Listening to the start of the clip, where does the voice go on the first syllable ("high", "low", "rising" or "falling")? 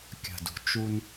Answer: low